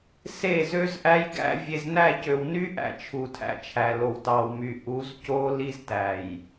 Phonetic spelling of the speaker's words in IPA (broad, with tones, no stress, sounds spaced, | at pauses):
s e˦˨ z ø˦ z ʔ æ˦ j ɡ æ̰˦ vʲ e˨ z n æ˦˨ c ø˨ w n y˦ ʔ æ̰˨ t͡ʃʰ u˨ tʰ æ̰˨ t͡ʃʰ æ˨ l o˨ w t ɑ˨ w m y˨ ʔ u˨˦ z c o˦ l i˦ z t æ˨ j